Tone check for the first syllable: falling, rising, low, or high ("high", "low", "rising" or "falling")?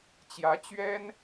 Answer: rising